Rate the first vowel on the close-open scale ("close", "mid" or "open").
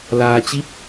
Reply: open